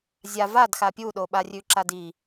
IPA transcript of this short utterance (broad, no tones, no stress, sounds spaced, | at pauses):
zʲ a v a d x a pʲ u ɗ o ɓ a rʲ ʉ ǁ a d i